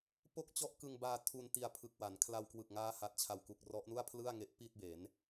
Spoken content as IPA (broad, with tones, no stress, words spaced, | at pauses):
po˥˩k̚t͡ɕɔ˥˩ʔkɯ˧ŋbaː˧ tʰu˧nti˧a̯pʰɯ˨˩k̚ wa˩˦n kʰla˧wkwɯ˨˩k̚ŋaː˦˥ha˨˩t̚ t͡ɕʰa˨˩wku˨˩k̚ rɔ˦˥ʔnu˥˩a̯pʰlɯ˥˩a̯ŋe˦˥ʔ pi˥˩t̚be˩˦n